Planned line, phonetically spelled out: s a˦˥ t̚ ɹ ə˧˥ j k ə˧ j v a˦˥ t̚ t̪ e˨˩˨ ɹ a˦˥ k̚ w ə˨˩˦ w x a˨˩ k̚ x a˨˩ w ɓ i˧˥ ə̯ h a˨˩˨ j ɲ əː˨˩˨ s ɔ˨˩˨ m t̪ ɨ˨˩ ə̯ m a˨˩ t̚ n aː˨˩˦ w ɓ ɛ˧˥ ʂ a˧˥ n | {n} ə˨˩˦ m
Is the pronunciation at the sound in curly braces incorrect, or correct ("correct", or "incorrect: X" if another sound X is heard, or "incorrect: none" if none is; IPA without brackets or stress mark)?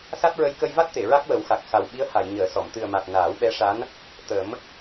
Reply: incorrect: t̪